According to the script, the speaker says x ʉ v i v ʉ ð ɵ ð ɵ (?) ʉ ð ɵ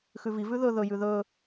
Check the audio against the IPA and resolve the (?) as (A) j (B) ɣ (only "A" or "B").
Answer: A